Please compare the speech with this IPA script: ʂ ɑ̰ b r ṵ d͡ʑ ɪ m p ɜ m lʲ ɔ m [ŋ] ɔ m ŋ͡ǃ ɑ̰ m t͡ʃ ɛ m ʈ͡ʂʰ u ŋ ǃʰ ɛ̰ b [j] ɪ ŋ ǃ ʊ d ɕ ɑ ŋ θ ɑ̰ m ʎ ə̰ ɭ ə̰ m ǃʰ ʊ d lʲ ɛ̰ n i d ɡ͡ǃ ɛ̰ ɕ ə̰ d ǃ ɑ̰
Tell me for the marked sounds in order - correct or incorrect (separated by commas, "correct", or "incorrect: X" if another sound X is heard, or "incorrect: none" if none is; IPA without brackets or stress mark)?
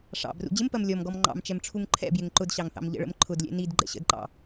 incorrect: ɡ, correct